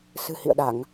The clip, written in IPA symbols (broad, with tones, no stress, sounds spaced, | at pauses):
s ɨ̤˨˩ h ḭ˧˨ ə̯ ɗ a˧˩˨ ŋ